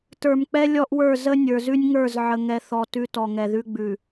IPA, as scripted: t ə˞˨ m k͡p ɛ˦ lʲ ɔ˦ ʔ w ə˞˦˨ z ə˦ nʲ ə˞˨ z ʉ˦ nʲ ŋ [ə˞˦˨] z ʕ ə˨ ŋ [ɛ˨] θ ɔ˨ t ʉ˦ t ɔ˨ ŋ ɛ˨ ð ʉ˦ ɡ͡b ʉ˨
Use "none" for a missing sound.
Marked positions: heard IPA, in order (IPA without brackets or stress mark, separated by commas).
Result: ə˞˦˨, ɛ˨